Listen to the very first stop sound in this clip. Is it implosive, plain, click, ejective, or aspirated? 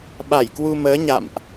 implosive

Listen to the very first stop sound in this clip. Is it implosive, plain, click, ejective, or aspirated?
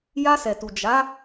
plain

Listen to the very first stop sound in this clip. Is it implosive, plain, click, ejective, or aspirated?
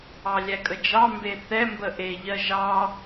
ejective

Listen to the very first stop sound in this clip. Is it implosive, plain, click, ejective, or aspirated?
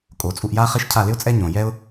ejective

